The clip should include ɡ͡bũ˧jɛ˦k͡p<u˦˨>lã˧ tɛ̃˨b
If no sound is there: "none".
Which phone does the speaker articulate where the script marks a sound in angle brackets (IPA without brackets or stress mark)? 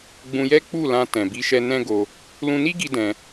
u˦˨